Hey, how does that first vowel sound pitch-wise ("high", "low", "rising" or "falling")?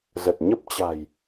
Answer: low